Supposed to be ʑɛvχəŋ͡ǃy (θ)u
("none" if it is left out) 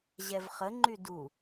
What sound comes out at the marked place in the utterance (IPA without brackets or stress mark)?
d